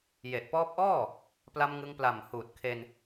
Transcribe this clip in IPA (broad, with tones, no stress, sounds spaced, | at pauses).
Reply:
j e˨˩ ʔ p ɔː˦˥ p̚ ʔ ɔː˥˩ | p l a˧ m ŋ ɯ˧ ŋ p l a˨˩ m h uː˨˩ t̚ kʰ e˧ n